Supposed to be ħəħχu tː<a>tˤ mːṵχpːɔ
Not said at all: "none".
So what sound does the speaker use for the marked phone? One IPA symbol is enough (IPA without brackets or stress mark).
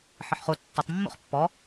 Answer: ə